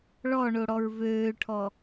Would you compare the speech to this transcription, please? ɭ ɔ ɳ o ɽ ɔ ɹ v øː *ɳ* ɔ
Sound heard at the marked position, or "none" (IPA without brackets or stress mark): ʈʰ